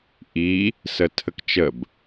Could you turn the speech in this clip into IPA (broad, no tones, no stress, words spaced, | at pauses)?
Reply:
ʔi | sətʰəkt͡ʃəb